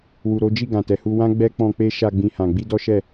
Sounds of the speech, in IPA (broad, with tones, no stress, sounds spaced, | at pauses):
w u˨ ɾ o˨˦ d͡ʒ i˦˨ ɡ ã˨ t ɛ˨ h u˧ w ã˦ ɡ͡b ɛ˦ k͡p ɔ̃˧ k͡p e˦ ʃ a˧ ɡ͡b ĩ˦ h ã˧ ɡ͡b i˦ d ɔ˦ ʃ ɛ˦˨